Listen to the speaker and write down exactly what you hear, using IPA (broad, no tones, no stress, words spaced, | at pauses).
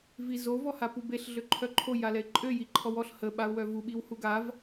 vizo vɔhapubeɬ ɮøǃʰœǃʰo jalɛɪ̯ǃʼø jiǃʰɔwɔɬ hə ɓaʊ̯wœvu ɓiwhuɡav